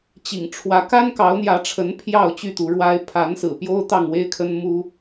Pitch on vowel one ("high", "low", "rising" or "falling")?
low